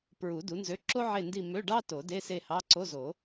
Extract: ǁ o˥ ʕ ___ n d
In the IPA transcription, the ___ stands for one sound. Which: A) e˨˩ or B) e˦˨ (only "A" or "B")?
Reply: B